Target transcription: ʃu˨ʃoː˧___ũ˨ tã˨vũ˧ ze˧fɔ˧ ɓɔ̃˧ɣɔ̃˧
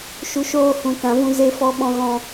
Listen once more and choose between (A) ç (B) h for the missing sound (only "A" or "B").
B